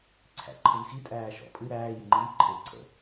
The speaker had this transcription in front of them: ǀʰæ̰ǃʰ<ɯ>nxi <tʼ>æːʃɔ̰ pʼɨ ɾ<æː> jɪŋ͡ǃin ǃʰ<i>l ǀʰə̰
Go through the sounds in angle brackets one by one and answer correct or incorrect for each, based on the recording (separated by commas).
correct, correct, correct, incorrect